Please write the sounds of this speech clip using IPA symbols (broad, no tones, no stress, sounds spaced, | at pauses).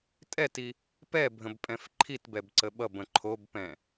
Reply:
tʼ ɛ t i | p ɛ bʱ ə̃ b pʼ ɛ̃ f ǃʰ i t b ɛ b ǀ ə ɓ ʌ b ə̃ ǃʰ o b p ɛ̃